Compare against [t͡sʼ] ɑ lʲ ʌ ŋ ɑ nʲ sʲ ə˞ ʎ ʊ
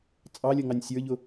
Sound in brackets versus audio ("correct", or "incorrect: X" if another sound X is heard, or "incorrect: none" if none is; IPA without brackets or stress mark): correct